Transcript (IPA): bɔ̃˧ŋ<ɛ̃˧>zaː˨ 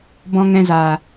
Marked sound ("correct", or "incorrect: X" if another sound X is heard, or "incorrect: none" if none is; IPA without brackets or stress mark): correct